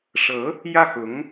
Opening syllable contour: rising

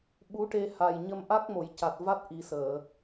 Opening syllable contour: rising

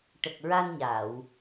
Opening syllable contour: low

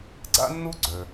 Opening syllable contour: high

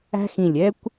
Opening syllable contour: high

